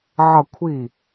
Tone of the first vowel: falling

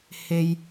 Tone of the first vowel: high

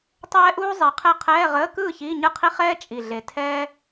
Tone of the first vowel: high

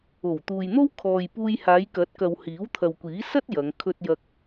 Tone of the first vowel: low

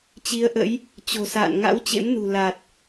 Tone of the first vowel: rising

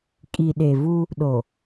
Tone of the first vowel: low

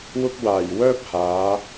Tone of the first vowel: high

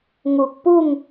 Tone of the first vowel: low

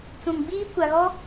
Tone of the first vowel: low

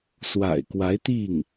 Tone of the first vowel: low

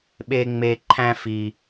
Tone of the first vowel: high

